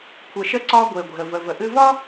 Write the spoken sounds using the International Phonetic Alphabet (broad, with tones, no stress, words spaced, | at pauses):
kʷʰə˩ʃə˧ǀɒ˧ ɡʷe˩ɡʷe̤˩ə̯ və˩v ə˩ʔɨ˧vɒ˥